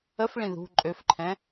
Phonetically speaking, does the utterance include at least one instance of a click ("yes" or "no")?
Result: yes